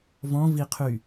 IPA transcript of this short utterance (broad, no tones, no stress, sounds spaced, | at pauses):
v ɔ̃ v i qʰ y